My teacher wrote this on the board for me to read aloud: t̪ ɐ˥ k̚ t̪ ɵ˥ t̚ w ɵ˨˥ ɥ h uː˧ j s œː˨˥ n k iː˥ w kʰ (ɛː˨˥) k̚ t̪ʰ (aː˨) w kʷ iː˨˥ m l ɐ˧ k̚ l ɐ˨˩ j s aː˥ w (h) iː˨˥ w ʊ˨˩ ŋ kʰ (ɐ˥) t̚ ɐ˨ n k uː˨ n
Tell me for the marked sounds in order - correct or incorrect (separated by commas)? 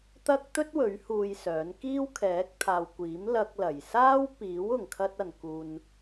correct, correct, incorrect, incorrect